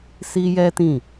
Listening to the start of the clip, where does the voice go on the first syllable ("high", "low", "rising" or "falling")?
high